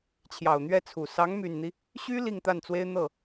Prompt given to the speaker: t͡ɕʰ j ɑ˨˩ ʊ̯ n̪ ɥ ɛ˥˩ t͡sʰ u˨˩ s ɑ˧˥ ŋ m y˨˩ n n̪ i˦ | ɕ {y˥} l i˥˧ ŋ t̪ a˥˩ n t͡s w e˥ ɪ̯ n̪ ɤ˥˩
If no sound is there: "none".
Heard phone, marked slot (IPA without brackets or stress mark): y˥